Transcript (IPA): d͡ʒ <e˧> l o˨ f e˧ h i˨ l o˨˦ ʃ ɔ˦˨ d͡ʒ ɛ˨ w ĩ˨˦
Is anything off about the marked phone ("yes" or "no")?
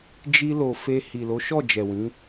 yes